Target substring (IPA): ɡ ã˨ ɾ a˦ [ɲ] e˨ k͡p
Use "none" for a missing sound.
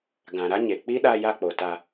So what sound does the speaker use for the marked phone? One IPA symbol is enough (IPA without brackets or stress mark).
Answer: ɲ